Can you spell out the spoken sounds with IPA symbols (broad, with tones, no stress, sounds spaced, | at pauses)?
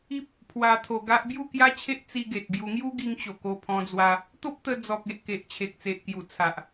i˦ p̚ | pʰ w a˧ t̪ʰ o˧ ɡ a˦ ʔ b j u˥˧ k j a˦ t͡ɕʰ e˦ ʔ t͡s i˧ ɡ e˨ t̚ ɡ j u˧ ŋ j u˦ ɡ i˧ ŋ t͡ɕ o˨˩ k o˧ pʰ ɔ̃˧ d͡z w a˧ | t̪ o˦ p̚ t̪ ə˧ d͡z ɔ˨ k̚ e˨ ʔ k e˨ ʔ t͡ɕʰ e˨ k̚ t͡s e˨ ʔ k j u˨˩ t͡sʰ a˨ ʔ